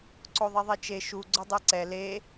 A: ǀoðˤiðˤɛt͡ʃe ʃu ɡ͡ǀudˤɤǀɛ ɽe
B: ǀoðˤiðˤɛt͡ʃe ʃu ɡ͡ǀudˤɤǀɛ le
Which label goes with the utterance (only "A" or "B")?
B